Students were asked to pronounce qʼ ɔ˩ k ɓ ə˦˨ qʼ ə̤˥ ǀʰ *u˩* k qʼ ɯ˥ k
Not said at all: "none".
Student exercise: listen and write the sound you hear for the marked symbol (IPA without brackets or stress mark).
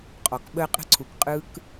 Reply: u˩